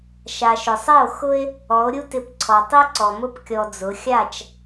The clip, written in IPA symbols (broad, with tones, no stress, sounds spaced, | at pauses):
ʃ a˨ ʃ ʊ˨ sˤ e˦˨ o̯ x ʊ˦ e̯ | ɔ˨˦ o̯ ɾʲ u˦ t ɪ˧ p ǀʰ ɔ˨ tˤ i˦ ǀ ɔ˨ m ʊ˦ p kʲ ɔ˧ d͡z ʊ˨˦ xʲ a˦˨ t͡ʃ